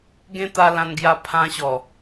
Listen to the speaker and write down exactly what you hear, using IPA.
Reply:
ɡ ẽ˦ t̪ a˧ l ã˧ n ɡ j a˧ pʰ ã˧ ɕ ɔ˨˩

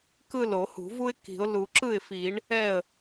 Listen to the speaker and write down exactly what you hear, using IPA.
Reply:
k ɯ˥˩ l o˨˩˦ h ṳ˨˩˦ v u˥ ɪ̯ k i̤˨˩˦ ʊ̯ l u˨˩˦ ǁ ɯ˥˩ ɪ̯ f i˨˩˦ ɳ | ɛ˥˩ ə̯

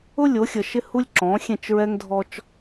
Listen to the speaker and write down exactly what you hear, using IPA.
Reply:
ʊ˦ lʲ o˨˦ xʲ ə˨ ʃ ɪ˦ h u˦ lʲ ǁ ɔ̃˨˦ xʲ ẽ˦˨ t͡ʃ ɹ ɛ˦ ŋ dʱ ɔ˦ t͡ʃ

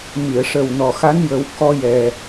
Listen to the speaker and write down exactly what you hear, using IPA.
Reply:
m i˨˩˨ ə̯ ʂ ə˨˩ w n ɔ˨˩ x a˧˥ n j ə˨˩˦ w k ɔ˧ j ɛ˨˩

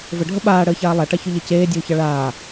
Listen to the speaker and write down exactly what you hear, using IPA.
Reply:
v ə ɖʱ ə ɓ aː ɽ əː ç aː lˠ a ʈ a ç ʉ ʎ e c eː dʲ uː ç ɑ ɭ aː

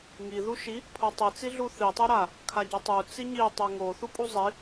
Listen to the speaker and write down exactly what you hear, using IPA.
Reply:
ŋ i ð u ʃ i | pʰ o tˤ i t͡s i ɮ u θ i tˤ o ɾ a | kʰ a ɟ o tˤ u t͡s i ɲ i tˤ e ŋ o θ u pʼ u zˤ i

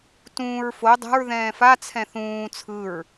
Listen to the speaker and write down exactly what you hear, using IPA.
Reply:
t ũː ɹ f o dˤ ɛ̤ ɹ ð ɛ̃ː f a t͡sʰ ɛ̃ θ ũː t͡sʰ ɯ ɹ

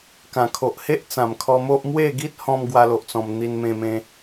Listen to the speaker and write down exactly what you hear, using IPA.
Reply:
k ã˨˩ kʰ o˨ ʔ h e˦ ʔ t͡s ã˨˩ m kʰ ɔ˧ m o˦ ʔ m w e˥˧ ɡ i˦ t̚ h ɔ̃˧ m ɡ w a˧ l o˨ ʔ t͡s ɔ̃˨˩ m n̪ i˧ n m ẽ˧ m ẽ˧

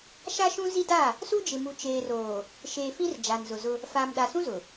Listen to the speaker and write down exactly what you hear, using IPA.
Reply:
ʃ a˦ ʃ ũ˦ z i˦ d a˦˨ | s u˦ d͡ʒ ɪ˨ m u˨ t͡ʃ eː˨ r oː˨ | ʃ eː˨ f ĩ˦ r d͡ʒ a˨ n z ʊ˨ z ʊ˦ | f aː˨ m ɗ a˨ s ũ˦ z ʊ˨

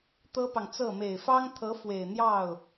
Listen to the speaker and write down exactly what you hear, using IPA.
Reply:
t̪ ɤ˥ p ɑ˨ ŋ t͡s ɤ˥˩ m e˨˩ ɪ̯ f ɑ˥ ŋ t̪ʰ ɤ˧˥ f w e˨˩ ɪ̯ n̪ j ɑ˥˩ ʊ̯

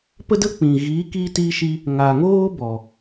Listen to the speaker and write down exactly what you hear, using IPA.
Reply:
p ə˦ d ə˦ k͡p ĩ˨ ɣ iː˨˦ k iː˧ t i˧ ʃ i˧ | ŋ a˨ ŋ oː˦ b ɔ˨

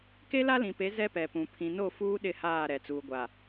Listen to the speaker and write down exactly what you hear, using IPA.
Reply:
k e˦ l a˦ l ĩ˨ p e˨˦ z ɛ˦ p ɛ˨ p ũ˨ pʰ ĩ˨ n o˦˨ f uː˦ ɗ ɪ˦˨ h aː˦˨ ɾ ɛ˨ t͡s uː˨ ɡʷ a˨

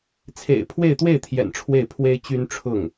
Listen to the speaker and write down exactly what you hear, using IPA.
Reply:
t͡sʰ ḛ˨˩ ɪ̯ pʰ w e˥˧ ɪ̯ t̪ w e˥˩ ɪ̯ t̪ʰ j ɛ̰˨˩ n ʈ͡ʂʰ w e˥˩ ɪ̯ pʰ w e˥ ɪ̯ t͡ɕ y˥ n ʈ͡ʂʰ ʊ˥˩ ŋ

